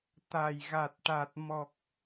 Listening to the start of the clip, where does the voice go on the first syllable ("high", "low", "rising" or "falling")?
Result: low